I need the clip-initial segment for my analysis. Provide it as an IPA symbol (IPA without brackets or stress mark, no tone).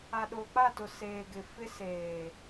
a